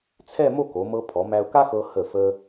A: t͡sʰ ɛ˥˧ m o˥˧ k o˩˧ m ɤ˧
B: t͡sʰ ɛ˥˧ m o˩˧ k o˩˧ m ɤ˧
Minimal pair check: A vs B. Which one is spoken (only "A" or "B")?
A